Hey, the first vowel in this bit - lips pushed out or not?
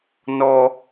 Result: yes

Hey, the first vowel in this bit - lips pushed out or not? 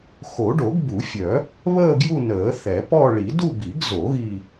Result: yes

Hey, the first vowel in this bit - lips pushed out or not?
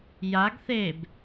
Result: no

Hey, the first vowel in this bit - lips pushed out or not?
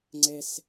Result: no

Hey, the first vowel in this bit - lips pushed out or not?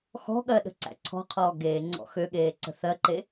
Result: yes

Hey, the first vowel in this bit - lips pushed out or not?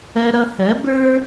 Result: no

